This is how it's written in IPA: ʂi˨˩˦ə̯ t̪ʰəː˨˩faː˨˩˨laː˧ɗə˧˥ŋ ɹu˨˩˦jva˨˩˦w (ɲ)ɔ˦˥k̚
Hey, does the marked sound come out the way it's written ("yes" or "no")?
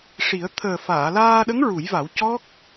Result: no